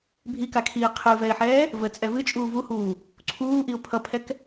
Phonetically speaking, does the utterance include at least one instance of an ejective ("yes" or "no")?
yes